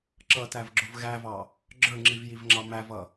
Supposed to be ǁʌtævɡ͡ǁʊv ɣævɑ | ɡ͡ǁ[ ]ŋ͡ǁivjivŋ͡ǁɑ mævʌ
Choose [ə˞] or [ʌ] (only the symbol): ə˞